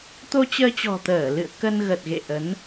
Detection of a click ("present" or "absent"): absent